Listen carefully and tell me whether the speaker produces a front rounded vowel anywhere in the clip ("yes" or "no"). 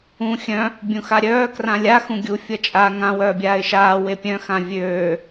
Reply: yes